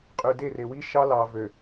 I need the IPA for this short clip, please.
qʼ y˨ d e˦˨ r e˨ w i˦ ʃ ɑ˦ l ɑ˨ v ø˨

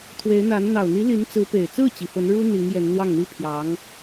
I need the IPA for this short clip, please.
t̪ʰ w e˧˥ ɪ̯ n̪ a˧˥ n n̪ ɑ˨˩ ʊ̯ n̪ i˧˥ l i˧˥ n t͡s ɹ̩˧˥ p e˨˩ ɪ̯ t͡s ɹ̩˥˩ t͡ɕ i˨˩ f ə˧˥ n ɻ u˥ n̪ i˧˥ ŋ j ɛ˧˥ n n̪ w ɑ˥˩ ŋ n̪ i˥ pʰ j ɑ˧˥ ŋ

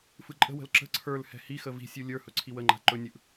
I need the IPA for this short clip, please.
f ɯ ǃʼ ə̤ w ə̤ l ǁ ə̤ ǀʰ ə˞ l h ɛ̤ h i x ə v i̤ sʲ u lʲ ə˞ h ɵ ǀʰ i w ə ŋ͡ǃ a̤ ǃ ɵ nʲ ɯ ʔ

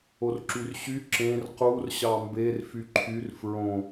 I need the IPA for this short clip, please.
o r ǁ y r ɕ y ǁ ẽ r q u r ɕ ɑ m b e r f y ǃʰ y r f ɹ õ

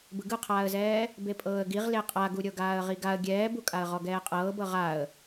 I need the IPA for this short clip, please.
b ɯ ɡ ɯ qʰ aː ə̯ z ɛː | b e pʼ ɤː ə̯ ɡ i ʁ l e qʼ a ɡ u ɾʲ ɤ ɡ aː ə̯ ʁ i ɡ a ə̯ ɡʲ ɛː b u kʼ a ə̯ ʁ ɔ ɡ ɛː qʼ ɤː b ɤ ʁ a ə̯

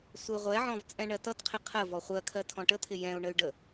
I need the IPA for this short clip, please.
sʷ ɪ ʁʷ ɛ ʕ ɔ̃ v t͡sʼ ɛ̃ ɳ ɜ t ʌ t qʰ ɪ qʰ ə v ɔ χʷ ɜ kʰ ɜ tʰ ɔ̃ ʈ ə t̪ʰ ɪ j ɛ̃ u̯ ɳ ə y̯ ɖ ə

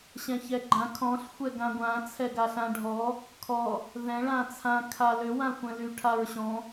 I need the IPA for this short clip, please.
ɕ ɛ̃ ç ɛ ɡ͡ǃ ã kʰ ɔ̃ ɬ xʷ ɛ ɡ ã ɡʷ ã t͡sʰ ɛ ɡ a ɬ ã ɖʱ ɔ | kʰ ɔ | ð ɛ̃ ɭ ã t͡sʰ ã kʰ a l ʏ w ã xʷ ɛ̃ l y ʈʰ a ɹ ɕ ɔ̃

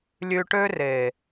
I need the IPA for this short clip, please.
lʲ ʉ˧ ʈ ø˦ r e˨

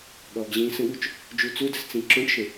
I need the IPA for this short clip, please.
ɠ ɔː ɡ ʑ ĩː s ə̃ ɠ u t͡ʃ | d͡ʒ u t͡s u d ɯ s t͡s ĩ ǁ õ ʈ ʃ ə̃

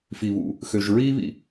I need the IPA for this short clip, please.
f i˨ β ṵ˨ | x ø˨ ʒ ɹ iː˦ β ḭ˨

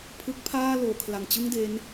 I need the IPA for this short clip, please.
pʰ ɯ˦˥ k̚ pʰ aː˥˩ l oː˩˦ kʰ l a˨˩ ŋ t͡ɕ ɯ˥˩ ŋ d e˦˥ n

